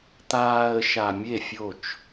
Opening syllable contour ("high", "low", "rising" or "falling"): low